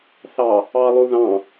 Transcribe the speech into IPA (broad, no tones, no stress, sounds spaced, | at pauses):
θ ɑ | ɑ lˠ u ð ɑ̃